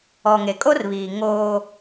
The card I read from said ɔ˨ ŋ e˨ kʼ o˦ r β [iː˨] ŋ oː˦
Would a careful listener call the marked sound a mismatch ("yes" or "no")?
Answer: no